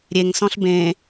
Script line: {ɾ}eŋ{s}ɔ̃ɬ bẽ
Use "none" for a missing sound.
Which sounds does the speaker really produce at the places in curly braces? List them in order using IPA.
ɾʲ, s

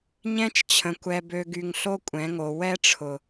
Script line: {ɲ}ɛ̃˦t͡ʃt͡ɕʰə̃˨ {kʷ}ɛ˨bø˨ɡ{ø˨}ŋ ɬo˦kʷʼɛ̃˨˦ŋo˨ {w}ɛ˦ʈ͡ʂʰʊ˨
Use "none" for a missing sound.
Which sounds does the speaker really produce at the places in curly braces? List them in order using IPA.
ɲ, kʷ, y˨, w

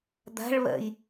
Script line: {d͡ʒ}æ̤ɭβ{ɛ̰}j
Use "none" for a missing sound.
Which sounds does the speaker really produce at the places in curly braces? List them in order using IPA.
d̪, ɛ̰

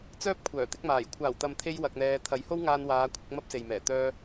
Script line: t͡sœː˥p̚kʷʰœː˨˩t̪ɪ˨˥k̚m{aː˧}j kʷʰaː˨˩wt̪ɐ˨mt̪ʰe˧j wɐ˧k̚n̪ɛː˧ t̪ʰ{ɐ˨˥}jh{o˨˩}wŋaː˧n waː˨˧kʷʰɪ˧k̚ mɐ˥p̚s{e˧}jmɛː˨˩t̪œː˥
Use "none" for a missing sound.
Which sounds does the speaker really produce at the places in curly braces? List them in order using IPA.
aː˨˩, ɐ˨˥, o˥, e˨

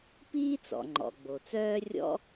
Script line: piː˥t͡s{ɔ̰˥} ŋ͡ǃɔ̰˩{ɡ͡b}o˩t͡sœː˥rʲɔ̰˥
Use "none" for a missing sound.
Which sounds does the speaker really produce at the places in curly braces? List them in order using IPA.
ɔ̰˩, ɡ͡b

